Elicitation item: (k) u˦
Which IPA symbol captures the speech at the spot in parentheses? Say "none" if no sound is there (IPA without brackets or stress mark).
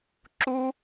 ǁ